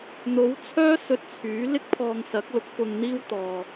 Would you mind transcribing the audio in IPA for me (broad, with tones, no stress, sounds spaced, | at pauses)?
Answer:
n̪ o˨˥ w t͡sʰ œː˥ s ɵ˧ t̚ t͡sʰ yː˨˥ l ɪ˥ k̚ pʰ ɔː˧ ŋ s ɐ˨˥ k̚ l ʊ˨˥ k̚ f ʊ˧ ŋ n̪ iː˥ w t̪ ɔː˧